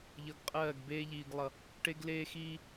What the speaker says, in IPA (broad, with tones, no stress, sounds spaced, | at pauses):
ʎ ʌ˨ ɡ qʼ ɜː˦˨ ɡ b eː˦ ʎ iː˨ ɡ lˠ ʌ˨ | ʈ e˦ ɡ l eː˦ x iː˦